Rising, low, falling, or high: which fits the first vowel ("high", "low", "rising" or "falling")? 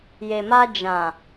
low